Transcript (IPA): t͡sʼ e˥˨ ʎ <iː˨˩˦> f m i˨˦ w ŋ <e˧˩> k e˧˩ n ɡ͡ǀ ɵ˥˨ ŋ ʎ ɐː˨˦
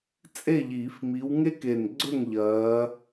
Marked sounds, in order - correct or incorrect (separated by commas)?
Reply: correct, incorrect